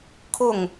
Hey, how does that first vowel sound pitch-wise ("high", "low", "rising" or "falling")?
falling